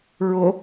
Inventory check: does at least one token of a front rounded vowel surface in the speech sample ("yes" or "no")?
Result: no